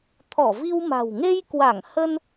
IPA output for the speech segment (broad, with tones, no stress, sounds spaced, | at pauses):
t̪ʰ ɔ˧˩ v i˧ w m a̤˨˩ w ŋ e˧ j k w a˧˩ ŋ h ə˧ n